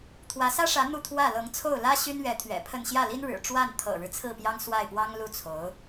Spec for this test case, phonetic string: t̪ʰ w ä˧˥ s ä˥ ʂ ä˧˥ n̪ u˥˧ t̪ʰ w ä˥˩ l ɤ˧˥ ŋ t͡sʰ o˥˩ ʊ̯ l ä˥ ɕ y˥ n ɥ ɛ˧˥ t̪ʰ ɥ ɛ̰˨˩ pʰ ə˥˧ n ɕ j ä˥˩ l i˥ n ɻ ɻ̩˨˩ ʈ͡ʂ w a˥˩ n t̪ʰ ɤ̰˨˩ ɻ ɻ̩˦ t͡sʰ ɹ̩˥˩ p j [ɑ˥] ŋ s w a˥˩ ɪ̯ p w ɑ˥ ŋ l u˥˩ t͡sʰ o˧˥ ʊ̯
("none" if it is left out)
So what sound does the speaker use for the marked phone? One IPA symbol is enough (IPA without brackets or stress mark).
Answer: ɑ˥